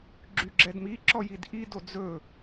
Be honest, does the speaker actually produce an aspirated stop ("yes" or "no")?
no